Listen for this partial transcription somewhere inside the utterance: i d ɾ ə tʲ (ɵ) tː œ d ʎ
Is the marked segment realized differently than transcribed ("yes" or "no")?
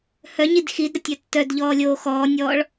yes